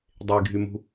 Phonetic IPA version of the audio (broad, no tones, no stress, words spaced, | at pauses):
dˤeɡʱymṳ